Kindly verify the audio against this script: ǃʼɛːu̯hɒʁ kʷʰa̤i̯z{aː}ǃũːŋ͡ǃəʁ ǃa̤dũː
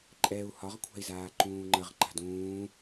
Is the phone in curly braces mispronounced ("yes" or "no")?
no